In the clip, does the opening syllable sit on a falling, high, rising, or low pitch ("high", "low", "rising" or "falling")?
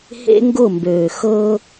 high